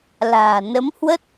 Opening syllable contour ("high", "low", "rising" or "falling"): low